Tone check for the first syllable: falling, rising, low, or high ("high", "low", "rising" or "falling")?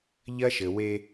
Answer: high